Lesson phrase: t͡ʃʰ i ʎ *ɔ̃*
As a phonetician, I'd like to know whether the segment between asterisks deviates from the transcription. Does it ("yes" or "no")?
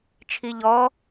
yes